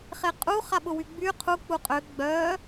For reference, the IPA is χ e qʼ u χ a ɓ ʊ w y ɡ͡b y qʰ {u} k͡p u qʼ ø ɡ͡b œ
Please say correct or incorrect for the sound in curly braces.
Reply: correct